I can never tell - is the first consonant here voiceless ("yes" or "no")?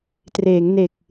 yes